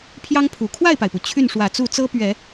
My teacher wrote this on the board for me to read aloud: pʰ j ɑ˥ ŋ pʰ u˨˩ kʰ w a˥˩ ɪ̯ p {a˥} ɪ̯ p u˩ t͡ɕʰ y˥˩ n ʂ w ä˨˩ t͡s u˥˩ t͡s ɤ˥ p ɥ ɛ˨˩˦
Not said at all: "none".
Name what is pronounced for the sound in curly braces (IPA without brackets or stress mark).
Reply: a˩